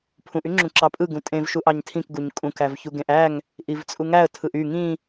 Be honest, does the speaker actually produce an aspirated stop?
yes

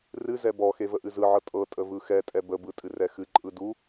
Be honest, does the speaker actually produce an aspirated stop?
no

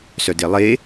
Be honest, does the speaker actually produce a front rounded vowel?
yes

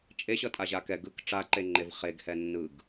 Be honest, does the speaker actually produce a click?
yes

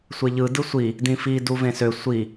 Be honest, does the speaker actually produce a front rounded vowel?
yes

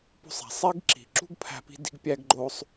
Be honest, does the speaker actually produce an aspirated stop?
yes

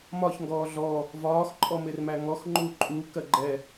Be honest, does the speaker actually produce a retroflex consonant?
no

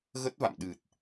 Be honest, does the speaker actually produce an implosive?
yes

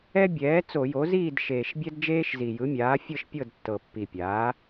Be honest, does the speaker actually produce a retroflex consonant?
no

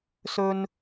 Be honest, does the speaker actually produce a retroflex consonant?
no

